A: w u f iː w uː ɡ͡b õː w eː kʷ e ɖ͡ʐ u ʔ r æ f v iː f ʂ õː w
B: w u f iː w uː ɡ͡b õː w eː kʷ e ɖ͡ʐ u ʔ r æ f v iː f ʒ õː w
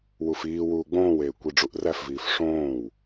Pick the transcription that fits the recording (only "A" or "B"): A